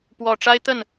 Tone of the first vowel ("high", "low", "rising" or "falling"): low